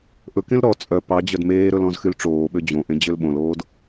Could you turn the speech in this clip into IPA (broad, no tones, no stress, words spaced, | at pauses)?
ʔɵkẽl ɾɔ t͡sʼœ pɑd͡ʑœd meːɾɵl ɔ̃zxylʈ͡ʂoːɓø d͡ʑõʔẽ d͡ʑølɓõloːd